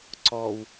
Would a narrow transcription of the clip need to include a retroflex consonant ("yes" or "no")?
no